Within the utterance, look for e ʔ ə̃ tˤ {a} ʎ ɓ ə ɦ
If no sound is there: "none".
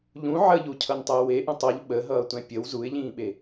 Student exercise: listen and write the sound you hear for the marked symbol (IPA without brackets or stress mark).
ʌ